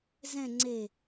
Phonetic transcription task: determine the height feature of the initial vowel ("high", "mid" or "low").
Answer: mid